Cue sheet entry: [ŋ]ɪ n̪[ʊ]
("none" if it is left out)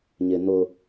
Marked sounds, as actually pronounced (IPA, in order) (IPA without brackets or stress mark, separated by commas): ɲ, ʊ